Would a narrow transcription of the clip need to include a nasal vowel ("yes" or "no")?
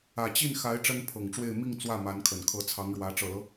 no